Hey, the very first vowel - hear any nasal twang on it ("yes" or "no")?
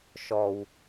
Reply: no